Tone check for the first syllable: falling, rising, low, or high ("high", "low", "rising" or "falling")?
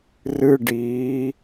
high